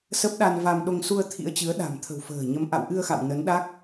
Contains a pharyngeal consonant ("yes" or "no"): no